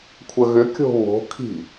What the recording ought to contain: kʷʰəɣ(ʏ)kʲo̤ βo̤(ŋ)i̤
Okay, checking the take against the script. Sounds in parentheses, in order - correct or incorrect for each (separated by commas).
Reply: correct, incorrect